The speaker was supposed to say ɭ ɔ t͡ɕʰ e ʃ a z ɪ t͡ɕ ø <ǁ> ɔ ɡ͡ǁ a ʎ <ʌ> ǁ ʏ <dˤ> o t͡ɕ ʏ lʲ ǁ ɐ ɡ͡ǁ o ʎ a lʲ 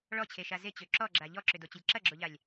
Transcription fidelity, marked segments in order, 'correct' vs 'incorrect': correct, incorrect: ɔ, incorrect: d

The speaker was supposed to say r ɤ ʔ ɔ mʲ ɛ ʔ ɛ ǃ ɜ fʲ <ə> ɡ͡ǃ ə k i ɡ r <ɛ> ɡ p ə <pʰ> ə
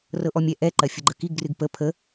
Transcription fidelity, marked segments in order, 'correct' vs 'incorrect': correct, incorrect: ɨ, correct

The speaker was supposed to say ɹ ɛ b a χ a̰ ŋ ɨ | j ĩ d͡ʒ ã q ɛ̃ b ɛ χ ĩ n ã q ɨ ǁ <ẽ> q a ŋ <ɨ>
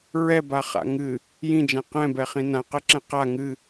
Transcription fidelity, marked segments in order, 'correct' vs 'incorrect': incorrect: ɛ̃, correct

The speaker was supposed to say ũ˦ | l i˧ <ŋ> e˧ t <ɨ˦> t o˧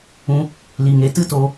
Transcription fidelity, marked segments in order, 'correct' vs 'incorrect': correct, correct

